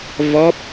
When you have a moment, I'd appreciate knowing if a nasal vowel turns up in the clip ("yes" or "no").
no